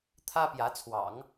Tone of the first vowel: high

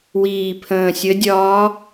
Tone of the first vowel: low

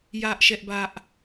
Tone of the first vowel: high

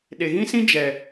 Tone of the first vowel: low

